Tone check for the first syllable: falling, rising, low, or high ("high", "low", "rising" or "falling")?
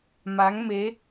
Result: rising